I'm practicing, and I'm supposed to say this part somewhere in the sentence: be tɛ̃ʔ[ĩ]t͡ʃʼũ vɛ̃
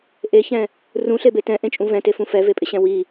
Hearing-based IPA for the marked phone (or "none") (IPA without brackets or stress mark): ẽ